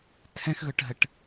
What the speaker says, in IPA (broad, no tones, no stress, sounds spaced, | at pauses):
tʰ ɛ̃ x ɣ ɵ ʈ ɦ ə ʈ